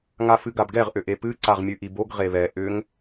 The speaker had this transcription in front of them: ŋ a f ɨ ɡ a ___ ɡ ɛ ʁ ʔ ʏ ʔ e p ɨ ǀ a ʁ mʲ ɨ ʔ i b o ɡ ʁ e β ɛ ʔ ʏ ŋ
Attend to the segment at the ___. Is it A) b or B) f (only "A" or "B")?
A